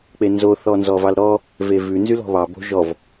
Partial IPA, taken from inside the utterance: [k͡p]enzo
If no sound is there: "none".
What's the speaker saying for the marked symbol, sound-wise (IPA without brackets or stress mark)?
k͡p